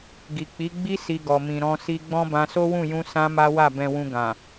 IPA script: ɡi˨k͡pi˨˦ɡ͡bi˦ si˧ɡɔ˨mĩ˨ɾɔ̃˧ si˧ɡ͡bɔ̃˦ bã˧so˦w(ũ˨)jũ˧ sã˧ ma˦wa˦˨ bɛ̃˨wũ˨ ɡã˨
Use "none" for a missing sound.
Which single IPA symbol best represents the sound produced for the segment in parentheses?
ũ˦˨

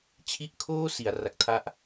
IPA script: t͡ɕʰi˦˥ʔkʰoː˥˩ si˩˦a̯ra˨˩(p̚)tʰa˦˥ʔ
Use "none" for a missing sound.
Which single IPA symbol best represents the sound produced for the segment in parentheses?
k̚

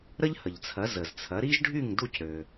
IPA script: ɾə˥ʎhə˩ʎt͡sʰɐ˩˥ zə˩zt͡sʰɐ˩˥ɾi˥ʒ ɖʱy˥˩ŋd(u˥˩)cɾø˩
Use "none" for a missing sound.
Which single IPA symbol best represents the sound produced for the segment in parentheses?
u˥˩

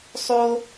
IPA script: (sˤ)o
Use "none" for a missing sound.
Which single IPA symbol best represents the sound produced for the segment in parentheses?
sˤ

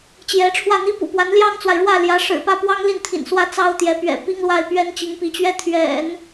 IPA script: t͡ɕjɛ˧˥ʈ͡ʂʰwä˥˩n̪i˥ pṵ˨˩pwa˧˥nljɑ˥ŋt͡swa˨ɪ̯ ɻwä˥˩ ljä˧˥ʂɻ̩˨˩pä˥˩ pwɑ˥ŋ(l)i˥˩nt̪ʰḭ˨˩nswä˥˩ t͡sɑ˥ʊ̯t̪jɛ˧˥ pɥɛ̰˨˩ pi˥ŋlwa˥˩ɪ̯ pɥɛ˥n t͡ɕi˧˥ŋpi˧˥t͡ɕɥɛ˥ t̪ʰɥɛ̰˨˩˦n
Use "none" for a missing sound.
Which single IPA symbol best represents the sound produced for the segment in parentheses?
l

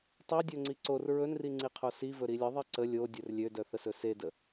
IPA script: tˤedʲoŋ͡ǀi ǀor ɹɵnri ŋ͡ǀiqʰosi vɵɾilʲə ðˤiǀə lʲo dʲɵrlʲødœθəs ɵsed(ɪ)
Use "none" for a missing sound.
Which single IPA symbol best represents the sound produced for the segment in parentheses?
ə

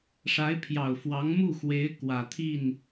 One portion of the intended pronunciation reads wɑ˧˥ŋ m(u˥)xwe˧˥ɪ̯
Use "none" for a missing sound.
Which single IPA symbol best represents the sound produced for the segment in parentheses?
u˥˩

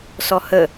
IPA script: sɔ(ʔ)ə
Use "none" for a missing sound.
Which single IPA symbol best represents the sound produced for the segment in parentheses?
h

